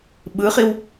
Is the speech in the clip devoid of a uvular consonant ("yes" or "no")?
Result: no